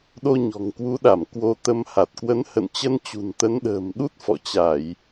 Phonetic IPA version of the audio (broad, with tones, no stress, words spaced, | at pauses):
ɗo˧ɲɔ̤˨˩ŋkwu˨˦ɗa˧˩m kwo˧ t̪ə˧mha˨˩t̚ kwə˨˦nhə̰˧˨nt͡ɕə˧n t͡ɕṳ˨˩nt̪ə˨˦n ɗə̤ː˨˩mɗu˦˥t̚ fɔ̰˧˨t͡ɕa˧˩˨j